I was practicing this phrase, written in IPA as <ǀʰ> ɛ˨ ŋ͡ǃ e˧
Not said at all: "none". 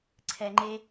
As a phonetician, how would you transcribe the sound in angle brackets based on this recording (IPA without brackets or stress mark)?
ǀʰ